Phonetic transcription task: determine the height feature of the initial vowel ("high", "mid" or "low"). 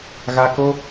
low